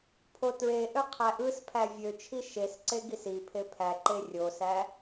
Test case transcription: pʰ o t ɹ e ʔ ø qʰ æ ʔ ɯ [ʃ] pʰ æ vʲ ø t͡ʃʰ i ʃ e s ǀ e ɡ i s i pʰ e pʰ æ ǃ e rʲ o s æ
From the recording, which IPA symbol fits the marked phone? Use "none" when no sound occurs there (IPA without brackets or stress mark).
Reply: s